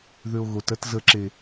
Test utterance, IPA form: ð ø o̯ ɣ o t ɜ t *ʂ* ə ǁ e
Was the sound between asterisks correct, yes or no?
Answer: no